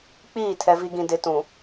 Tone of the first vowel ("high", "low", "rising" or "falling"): falling